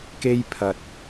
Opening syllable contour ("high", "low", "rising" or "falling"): high